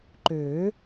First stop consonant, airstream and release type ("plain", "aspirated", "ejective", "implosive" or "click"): click